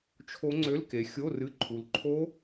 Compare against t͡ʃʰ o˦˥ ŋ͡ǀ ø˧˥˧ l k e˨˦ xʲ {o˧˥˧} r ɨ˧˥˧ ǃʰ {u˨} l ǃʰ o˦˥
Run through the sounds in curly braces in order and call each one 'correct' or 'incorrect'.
correct, correct

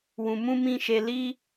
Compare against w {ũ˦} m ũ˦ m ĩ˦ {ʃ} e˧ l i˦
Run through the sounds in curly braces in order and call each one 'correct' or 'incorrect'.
incorrect: ũ˧, correct

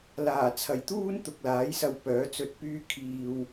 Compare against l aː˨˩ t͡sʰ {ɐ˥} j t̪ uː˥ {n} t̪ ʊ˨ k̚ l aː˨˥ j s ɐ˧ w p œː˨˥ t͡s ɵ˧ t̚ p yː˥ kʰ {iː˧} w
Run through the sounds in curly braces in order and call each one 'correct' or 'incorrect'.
incorrect: ɐ˨˩, correct, correct

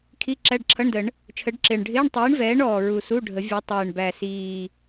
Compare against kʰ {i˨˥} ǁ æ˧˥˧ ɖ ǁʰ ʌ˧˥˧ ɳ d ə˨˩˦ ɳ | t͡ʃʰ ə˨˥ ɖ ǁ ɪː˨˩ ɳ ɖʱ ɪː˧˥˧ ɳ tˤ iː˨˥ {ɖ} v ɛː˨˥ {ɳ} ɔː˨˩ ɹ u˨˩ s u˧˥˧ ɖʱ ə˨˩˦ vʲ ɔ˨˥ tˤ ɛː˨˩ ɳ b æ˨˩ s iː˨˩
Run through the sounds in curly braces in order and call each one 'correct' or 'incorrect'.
incorrect: i˧˥˧, incorrect: ɳ, correct

